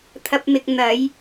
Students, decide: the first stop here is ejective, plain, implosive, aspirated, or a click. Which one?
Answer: aspirated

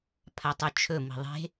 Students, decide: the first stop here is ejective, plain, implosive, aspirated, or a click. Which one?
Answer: aspirated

